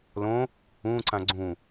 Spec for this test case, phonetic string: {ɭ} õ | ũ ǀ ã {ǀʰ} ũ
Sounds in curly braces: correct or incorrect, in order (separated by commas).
incorrect, incorrect